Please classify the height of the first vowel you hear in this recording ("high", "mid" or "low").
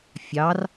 low